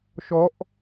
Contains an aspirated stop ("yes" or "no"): no